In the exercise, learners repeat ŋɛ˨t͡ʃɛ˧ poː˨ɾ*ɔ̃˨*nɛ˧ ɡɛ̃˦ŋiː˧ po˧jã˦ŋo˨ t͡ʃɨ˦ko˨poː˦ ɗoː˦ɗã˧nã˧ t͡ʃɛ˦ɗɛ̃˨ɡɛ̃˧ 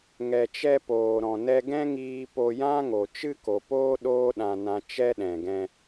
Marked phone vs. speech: correct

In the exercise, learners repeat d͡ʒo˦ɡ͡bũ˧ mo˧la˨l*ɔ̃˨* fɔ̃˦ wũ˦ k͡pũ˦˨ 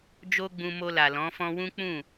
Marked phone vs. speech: incorrect: ɔ̃˨˦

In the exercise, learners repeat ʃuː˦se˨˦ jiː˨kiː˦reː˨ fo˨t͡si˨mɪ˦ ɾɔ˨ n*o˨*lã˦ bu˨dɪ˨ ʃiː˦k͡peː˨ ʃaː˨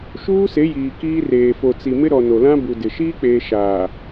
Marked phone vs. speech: correct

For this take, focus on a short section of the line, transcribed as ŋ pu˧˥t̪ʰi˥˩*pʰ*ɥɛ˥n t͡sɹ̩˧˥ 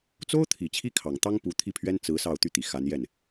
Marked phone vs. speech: correct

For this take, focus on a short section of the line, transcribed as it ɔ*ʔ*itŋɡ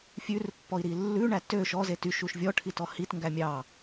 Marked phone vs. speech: incorrect: h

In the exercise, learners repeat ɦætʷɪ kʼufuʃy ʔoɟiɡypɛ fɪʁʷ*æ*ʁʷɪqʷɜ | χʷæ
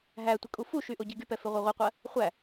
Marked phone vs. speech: incorrect: ɜ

